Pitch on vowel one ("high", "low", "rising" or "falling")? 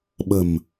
low